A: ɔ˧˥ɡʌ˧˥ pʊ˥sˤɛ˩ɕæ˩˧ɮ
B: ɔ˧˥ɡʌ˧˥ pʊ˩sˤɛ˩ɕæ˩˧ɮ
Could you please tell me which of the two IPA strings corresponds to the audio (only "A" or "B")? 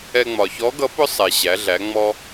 A